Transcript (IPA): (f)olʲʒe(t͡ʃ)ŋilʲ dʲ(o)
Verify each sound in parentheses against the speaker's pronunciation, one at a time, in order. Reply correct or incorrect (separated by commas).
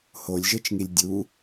incorrect, correct, incorrect